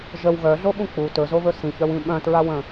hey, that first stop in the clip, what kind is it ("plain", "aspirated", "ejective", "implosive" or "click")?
implosive